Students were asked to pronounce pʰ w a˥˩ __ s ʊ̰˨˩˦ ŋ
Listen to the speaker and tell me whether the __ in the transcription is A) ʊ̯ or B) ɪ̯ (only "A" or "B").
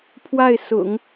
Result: B